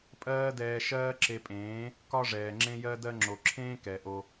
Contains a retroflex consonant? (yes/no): yes